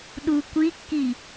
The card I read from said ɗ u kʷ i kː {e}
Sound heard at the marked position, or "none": i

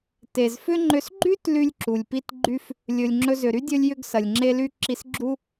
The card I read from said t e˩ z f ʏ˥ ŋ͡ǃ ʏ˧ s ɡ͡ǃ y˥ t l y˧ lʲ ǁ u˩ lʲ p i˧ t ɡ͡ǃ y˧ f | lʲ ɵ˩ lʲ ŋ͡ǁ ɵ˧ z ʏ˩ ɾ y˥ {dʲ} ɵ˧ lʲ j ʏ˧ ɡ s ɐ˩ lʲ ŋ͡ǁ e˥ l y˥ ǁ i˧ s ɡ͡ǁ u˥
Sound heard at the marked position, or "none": dʲ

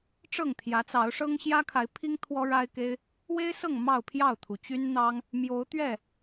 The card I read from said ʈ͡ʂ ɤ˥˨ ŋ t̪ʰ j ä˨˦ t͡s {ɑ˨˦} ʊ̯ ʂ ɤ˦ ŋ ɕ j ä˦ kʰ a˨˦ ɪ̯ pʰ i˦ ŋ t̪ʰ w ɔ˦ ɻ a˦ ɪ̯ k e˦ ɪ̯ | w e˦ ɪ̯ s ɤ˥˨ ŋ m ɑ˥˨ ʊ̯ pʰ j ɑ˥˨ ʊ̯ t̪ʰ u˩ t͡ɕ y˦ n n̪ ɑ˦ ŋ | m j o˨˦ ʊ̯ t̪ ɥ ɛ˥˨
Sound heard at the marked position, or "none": ɑ˨˦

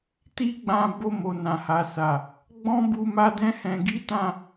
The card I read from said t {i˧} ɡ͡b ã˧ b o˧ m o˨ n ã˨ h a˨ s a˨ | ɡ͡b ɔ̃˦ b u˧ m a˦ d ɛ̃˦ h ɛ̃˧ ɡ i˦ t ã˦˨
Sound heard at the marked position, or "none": i˦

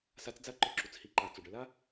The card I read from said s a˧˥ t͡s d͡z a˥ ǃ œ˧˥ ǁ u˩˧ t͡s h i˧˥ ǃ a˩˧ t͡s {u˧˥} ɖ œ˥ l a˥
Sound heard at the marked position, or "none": u˩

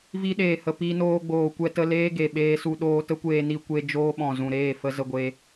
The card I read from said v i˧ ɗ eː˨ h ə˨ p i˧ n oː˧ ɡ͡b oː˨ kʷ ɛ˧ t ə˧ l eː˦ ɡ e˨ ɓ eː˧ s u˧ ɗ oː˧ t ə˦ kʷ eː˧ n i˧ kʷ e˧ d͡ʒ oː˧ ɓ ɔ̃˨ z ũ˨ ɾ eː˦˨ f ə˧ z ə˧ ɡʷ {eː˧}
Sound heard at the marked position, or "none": e˧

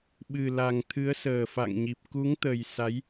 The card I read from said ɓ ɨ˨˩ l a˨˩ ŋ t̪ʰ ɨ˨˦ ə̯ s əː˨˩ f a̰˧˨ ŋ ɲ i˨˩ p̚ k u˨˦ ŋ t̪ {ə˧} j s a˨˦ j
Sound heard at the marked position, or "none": ə˨˩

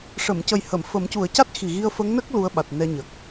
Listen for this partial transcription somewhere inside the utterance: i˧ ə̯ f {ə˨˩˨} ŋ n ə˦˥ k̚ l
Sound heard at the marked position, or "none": ə˧˥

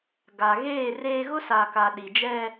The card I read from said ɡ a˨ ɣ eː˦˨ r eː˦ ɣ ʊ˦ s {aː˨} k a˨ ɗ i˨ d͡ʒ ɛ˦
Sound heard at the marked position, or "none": aː˨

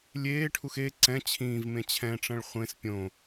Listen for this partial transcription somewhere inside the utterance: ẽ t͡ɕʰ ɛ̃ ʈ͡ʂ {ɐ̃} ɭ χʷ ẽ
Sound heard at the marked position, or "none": ɐ̃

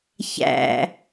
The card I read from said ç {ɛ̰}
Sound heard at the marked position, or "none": æ̰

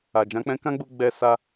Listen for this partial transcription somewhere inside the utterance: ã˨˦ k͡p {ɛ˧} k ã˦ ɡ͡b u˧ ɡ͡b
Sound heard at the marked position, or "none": ɛ̃˧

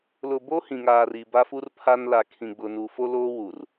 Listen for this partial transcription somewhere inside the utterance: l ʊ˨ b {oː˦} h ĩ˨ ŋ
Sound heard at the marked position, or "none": oː˦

